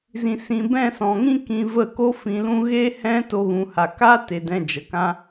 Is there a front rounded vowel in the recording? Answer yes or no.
no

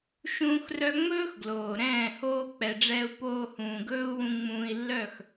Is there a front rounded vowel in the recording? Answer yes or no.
yes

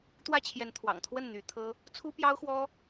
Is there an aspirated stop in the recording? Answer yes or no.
yes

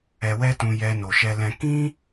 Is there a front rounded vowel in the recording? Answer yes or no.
no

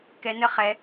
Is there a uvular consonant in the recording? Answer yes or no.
yes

